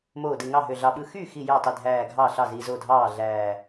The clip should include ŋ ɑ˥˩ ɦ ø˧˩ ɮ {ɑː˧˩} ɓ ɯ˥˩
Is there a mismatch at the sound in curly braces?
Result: yes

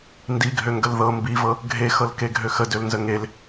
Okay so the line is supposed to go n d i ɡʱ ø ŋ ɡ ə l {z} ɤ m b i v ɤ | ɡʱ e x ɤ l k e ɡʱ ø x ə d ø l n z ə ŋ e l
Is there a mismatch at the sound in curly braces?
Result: yes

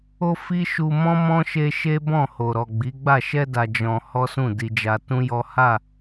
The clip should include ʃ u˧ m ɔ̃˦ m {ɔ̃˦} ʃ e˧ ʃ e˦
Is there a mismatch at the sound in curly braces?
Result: no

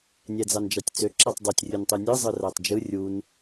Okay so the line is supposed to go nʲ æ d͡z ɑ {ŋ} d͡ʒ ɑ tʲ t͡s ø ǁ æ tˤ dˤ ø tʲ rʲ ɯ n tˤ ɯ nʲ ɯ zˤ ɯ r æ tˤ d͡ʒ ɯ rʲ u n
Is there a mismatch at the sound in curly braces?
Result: yes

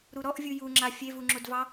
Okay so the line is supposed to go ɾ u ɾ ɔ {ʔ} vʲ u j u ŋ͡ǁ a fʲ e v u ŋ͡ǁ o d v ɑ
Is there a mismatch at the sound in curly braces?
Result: no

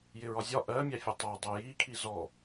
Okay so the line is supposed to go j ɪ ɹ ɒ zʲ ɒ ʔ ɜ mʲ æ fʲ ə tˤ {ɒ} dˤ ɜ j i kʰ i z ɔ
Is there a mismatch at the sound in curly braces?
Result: yes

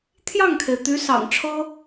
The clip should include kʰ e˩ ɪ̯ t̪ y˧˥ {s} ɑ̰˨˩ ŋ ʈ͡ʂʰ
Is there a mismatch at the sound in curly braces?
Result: no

